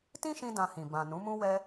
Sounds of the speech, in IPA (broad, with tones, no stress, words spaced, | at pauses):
tĩ˦ʃĩ˧ dã˧hĩ˨ bã˨ nũ˨˦mũ˦wɛ˦